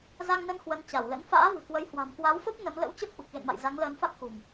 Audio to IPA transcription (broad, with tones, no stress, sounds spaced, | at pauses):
z a˧ ŋ n ə˧ n h w ə˨˦ n t͡ɕ a˧˩ w l ə̰˧˥ n f a̰ː˧˥ v ɨ̤˨˩ k w ə˨˦ j h w a̤˨˩ m k w a˨˦ w f ə˦˥ p̚ n ə˨˦ m l ə̰˧˥ w t͡ɕ ə˦˥ p̚ ʔ u˨˩ k̚ ɣ ḛ˧˨ n m a̰˧˨ j z a˨˦ ŋ l əː˨˦ n f a˦˥ k̚ x ṳ˨˩ m